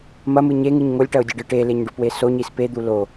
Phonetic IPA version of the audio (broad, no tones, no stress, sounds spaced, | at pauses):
m ɐ m ɨ ɲ e ŋ ɨ ɲ ŋ o lʲ ʈ ɐ ʊ̯ dʲ ɨ ɖ ɨ ʈ e l e ɲ ɖ u p w e s o ɲ i s p e d̪ u l o